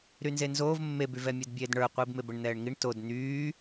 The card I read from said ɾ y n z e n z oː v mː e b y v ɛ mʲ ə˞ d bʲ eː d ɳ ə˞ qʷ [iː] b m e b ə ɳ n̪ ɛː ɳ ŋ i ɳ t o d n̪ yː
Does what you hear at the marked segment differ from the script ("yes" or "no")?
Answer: no